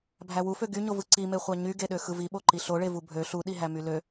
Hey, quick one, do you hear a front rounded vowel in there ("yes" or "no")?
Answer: yes